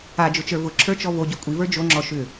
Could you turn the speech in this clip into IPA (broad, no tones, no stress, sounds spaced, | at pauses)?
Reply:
a d͡ʒ ʊ t͡ʃ ə˞ v ʊ ǁʰ ə˞ t͡ʃ ɔ v o ɟ o kʷʼ i v ə˞ d͡ʒ o ŋ͡ǁ ɔ ʃ ʏ